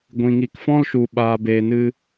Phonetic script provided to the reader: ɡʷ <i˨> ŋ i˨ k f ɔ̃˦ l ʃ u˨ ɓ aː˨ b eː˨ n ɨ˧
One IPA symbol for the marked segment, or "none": ĩ˨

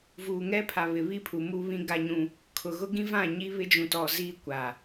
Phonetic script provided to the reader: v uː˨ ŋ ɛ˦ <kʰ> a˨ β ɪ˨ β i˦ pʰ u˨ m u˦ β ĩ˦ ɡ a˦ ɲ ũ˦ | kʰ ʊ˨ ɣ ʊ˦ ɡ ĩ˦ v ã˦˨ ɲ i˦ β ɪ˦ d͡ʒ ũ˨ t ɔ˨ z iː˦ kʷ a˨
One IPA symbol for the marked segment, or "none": pʰ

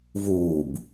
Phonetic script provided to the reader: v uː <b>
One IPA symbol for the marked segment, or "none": b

